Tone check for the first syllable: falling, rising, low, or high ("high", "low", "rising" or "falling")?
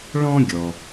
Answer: high